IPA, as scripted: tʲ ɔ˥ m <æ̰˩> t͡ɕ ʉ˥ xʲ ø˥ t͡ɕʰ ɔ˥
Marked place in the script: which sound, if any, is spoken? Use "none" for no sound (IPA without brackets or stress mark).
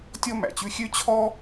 æ̰˩